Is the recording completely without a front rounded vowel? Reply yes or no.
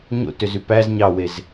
no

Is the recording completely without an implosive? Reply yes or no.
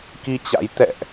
yes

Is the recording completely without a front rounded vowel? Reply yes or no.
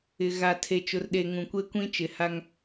yes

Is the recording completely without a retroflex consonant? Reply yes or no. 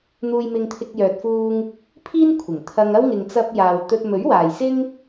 yes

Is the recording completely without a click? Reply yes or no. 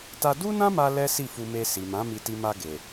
yes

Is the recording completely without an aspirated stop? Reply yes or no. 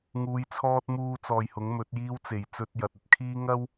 no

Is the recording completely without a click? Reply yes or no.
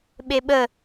yes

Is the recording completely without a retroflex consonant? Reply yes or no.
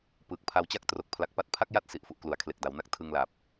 yes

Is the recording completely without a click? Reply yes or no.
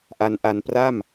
yes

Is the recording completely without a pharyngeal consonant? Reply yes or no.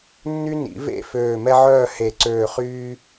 no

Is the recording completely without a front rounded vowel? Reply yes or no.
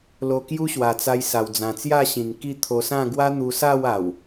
yes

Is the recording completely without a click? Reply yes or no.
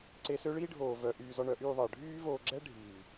no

